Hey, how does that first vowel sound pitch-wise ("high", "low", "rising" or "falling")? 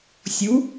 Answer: rising